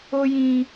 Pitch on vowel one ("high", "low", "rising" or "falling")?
high